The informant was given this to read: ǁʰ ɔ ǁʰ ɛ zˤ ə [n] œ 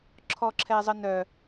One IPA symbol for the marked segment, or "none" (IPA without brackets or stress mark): n